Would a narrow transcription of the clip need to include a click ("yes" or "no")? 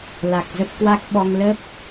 no